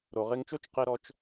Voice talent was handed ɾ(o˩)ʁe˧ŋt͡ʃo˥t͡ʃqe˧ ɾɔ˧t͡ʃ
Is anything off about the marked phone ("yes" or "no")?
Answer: no